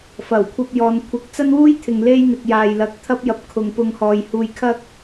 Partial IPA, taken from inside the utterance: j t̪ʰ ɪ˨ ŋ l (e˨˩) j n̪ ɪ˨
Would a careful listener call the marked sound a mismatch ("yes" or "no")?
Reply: yes